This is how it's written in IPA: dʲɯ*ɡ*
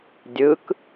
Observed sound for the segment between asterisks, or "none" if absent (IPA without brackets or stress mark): k